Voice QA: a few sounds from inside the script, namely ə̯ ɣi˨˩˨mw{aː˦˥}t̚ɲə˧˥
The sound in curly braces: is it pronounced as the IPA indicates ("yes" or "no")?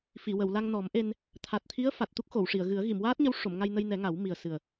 yes